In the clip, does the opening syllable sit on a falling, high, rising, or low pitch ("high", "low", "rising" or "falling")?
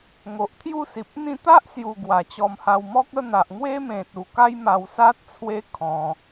low